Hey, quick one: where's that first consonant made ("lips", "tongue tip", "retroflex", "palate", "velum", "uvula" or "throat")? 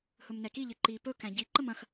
throat